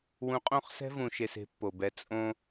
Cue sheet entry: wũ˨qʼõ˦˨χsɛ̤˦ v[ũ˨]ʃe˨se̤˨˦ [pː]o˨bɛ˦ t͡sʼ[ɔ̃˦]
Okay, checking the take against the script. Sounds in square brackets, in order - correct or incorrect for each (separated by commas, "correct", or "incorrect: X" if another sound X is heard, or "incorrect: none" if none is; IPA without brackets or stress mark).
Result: correct, correct, incorrect: õ˦